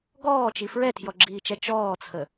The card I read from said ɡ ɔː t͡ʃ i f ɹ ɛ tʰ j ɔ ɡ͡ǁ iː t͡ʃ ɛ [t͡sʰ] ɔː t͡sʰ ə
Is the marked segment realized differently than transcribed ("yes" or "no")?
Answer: yes